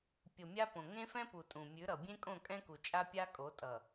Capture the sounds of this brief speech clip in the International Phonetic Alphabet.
pʲ o˨ mʲ a˦ p õ˨ ŋ ẽ˦ f ɛ̃˦ p u˨ tʼ ũ˨ mʲ ʉ˨˦ ɾ ʌ˨ bʲ ẽ˦ kʼ õ˦˨ kʼ ɛ̃˦ k u˨ t͡ʃʼ a˦ pʲ a˦ kʼ o˨˦ tʼ ʌ˨

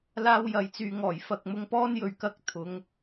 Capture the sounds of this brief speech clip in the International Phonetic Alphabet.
l aː˧ w j ɐ˨ j t͡s yː˨ ŋ ɔː˨˩ j f ɐ˨ k̚ m ʊ˧ ŋ p ɔː˥ n j ɵ˧ ɥ k ɐ˥ k̚ t̪ʰ ʊ˨˧ ŋ

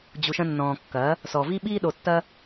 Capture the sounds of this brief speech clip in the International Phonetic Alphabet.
d͡ʑ u˨ ʃ ɐ̃˧ nː ɔ̃ː˨ kː ɐː˨˦ | s ɔ˨ v i˧ ɓ iː˧ ɗ o˨ tː ɐ˧

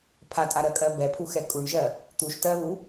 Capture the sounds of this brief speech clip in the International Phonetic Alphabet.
pʰ a tʼ a ɾ ɜ kʼ ɜ b ɛ pʰ u x ɛ kʼ u ɳ ʒ ɜ | t̪ u ʃ t ɜ β u

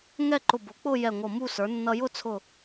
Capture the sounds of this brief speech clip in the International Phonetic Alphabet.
ŋ ɛ˥˧ ǃ ʊ˧˩ b ʊ˩˥ k͡p ʊ˥˧ j ɛ˧˩ ŋʷ ʌ˧˩ m u˥˧ s ə˞˩˥ nː ʌ˧ j ʊ˥˧ t͡sʰ ʊ˧˩

